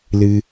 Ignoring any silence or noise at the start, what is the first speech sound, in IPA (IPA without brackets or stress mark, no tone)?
l